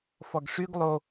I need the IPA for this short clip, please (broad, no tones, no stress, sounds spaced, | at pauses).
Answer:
f ɔ ɡ ʂ y ɡ lˠ o